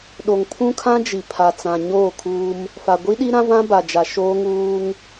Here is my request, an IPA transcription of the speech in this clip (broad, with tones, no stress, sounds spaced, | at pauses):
ɗ o˨ ŋ pʰ ũ˦ kʰ ã˦ d͡ʒ i˨ pʰ a˨ t͡s ã˨ ɲ oː˦˨ kʰ uː˦ m | f a˨ ɡʷ i˦ ɗ i˦ ɾ ã˦ v ã˦ b a˨ d͡ʒ a˨ ʃ oː˦ ŋ uː˦ ŋ